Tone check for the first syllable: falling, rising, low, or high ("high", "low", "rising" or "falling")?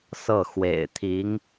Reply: falling